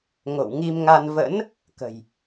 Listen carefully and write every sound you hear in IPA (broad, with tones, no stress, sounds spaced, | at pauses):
ŋ o̰˧˨ w ŋ i˧ m ŋ a˧ n v ə̰˧˥ n | k ə̤˨˩ j